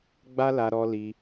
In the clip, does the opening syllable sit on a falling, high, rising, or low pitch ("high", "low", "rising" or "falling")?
high